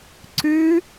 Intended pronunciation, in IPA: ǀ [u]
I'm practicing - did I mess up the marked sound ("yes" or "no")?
yes